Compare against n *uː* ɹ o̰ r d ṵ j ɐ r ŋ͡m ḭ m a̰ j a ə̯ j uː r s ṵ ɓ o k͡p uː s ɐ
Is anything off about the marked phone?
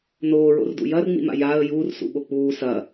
yes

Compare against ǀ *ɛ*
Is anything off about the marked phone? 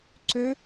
yes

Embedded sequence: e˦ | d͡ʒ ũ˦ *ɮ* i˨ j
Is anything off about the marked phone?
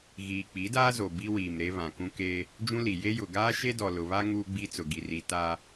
yes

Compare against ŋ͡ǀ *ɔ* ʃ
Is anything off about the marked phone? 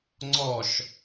no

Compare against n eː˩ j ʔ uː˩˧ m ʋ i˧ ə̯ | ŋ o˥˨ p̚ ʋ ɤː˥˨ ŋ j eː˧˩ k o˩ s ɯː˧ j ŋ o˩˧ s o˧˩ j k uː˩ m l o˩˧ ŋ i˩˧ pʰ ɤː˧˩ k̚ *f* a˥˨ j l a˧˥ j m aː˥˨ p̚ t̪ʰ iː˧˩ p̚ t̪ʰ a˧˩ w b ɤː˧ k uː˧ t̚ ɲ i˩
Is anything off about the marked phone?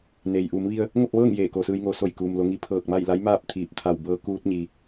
yes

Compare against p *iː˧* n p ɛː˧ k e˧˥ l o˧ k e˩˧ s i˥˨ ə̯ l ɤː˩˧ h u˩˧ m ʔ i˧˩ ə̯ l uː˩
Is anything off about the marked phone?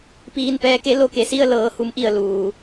no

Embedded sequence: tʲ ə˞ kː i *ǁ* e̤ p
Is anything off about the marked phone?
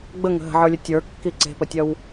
yes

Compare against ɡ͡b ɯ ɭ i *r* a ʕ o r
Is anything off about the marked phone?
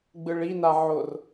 yes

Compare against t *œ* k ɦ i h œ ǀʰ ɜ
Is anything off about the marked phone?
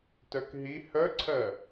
no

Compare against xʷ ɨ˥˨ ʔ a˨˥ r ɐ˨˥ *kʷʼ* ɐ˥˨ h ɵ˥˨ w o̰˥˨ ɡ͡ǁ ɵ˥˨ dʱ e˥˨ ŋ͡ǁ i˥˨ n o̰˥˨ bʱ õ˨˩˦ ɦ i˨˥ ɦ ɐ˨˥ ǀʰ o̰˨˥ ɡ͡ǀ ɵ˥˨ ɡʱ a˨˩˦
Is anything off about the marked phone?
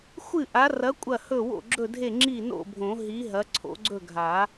no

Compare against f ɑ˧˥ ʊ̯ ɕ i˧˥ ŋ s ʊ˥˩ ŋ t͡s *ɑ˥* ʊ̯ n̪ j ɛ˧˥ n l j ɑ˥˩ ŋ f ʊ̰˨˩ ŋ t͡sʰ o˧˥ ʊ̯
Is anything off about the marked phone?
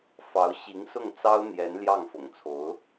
no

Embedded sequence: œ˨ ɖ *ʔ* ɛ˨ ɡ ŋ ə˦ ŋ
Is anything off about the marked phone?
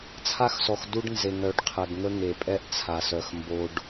yes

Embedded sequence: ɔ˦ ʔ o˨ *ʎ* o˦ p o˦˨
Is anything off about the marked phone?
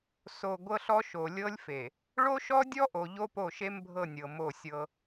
no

